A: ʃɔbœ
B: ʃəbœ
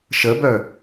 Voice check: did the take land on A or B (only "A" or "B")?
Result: B